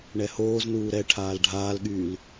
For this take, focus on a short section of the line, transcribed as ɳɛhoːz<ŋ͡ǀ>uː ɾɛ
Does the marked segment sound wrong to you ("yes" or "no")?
yes